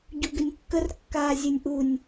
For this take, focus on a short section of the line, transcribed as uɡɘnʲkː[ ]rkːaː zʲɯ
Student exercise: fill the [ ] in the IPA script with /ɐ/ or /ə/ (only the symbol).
ə